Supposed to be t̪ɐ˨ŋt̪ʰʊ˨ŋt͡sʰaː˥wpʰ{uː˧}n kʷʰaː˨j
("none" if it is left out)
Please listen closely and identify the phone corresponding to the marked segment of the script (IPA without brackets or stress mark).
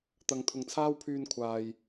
yː˧